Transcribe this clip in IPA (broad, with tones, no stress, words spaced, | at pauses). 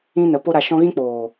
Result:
ĩ˦nə˨˦ po˦ɾa˧ʃɔ̃˦ ɣĩ˦k͡poː˨